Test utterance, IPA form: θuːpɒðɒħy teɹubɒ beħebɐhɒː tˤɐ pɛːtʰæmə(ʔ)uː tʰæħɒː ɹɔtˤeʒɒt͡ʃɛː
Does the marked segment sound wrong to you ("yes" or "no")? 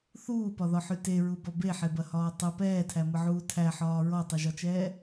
yes